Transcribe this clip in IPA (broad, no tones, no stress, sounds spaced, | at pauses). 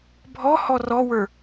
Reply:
bʱ ɔ h ɔ r ɔ w ə˞